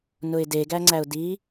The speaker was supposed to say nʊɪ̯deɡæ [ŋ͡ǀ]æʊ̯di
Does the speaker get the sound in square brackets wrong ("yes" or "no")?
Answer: no